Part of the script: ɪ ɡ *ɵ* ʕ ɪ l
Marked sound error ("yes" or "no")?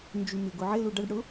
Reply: yes